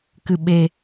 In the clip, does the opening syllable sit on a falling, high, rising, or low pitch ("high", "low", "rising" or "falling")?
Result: low